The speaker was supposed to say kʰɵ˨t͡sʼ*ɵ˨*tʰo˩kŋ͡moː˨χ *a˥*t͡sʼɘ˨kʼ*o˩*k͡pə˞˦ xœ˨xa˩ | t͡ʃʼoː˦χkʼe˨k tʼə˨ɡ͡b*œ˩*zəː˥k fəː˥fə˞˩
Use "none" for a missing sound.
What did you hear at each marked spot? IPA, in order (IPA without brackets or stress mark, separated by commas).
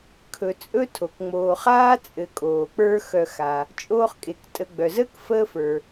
ɵ˥, aː˥, oː˩, œ˩